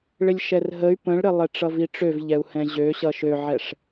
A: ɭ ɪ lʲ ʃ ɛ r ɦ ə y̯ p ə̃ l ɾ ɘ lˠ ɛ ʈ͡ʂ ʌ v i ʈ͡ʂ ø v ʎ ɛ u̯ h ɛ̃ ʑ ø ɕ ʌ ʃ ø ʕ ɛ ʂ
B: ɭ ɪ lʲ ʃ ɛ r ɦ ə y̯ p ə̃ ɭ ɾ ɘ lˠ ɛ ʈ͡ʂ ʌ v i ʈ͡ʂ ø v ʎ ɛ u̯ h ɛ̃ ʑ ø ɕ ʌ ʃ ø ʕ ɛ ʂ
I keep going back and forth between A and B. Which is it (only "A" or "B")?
B